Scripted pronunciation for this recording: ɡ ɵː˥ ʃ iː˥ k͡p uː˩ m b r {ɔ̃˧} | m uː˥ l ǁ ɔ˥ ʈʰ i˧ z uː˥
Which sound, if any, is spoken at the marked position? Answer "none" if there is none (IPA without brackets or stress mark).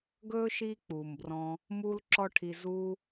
ɔ̃˧